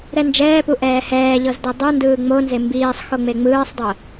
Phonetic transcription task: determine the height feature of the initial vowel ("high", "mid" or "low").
mid